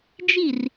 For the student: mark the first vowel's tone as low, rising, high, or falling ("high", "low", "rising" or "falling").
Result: falling